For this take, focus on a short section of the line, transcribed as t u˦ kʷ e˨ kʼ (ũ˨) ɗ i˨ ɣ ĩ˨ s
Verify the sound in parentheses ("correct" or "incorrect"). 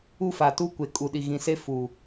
incorrect